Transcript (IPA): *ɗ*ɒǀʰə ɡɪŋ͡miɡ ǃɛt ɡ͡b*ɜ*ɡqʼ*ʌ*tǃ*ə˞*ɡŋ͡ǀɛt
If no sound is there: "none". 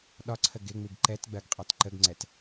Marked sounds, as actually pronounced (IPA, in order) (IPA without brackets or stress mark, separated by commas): ɗ, ɜ, ɑ, ə